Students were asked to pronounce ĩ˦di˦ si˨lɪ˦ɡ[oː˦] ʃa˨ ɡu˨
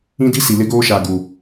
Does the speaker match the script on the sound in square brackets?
yes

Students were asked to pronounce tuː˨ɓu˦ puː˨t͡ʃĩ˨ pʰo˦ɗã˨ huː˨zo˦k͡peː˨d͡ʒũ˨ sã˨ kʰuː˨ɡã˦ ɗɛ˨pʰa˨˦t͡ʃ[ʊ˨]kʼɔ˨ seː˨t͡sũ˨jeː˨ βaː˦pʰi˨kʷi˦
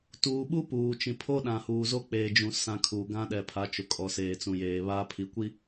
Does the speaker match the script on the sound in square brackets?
yes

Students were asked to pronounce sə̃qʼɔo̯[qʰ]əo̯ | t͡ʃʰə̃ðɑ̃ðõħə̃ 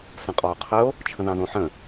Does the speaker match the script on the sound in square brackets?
yes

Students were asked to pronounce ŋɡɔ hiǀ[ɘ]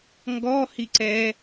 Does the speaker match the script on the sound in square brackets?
no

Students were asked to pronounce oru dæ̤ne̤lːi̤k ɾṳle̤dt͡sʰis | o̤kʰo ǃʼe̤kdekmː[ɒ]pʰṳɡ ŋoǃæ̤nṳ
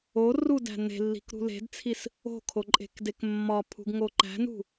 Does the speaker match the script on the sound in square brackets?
yes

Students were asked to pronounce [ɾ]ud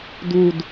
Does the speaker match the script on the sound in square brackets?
no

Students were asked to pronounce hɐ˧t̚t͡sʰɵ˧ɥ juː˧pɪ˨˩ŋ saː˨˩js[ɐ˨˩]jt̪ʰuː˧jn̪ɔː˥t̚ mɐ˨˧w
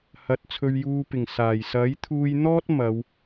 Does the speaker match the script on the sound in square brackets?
no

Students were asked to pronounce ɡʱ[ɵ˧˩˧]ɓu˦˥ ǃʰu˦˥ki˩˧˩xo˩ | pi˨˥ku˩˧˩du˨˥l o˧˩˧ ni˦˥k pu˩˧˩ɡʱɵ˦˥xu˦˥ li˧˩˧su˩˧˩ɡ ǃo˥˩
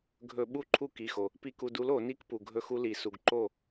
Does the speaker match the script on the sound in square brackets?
yes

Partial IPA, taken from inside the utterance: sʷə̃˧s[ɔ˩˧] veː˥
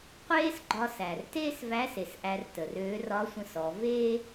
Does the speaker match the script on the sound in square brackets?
yes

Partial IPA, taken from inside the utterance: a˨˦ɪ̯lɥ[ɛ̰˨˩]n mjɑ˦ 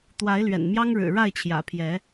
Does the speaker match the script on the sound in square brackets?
yes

